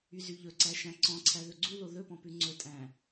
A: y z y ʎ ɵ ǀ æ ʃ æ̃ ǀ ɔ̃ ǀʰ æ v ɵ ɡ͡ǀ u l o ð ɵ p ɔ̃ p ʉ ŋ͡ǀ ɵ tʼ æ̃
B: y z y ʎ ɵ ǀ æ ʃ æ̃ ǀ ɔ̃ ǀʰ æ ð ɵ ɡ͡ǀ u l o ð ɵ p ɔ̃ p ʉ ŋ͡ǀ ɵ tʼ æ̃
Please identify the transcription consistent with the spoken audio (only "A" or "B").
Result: B